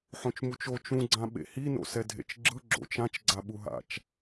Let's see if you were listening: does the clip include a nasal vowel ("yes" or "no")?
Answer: yes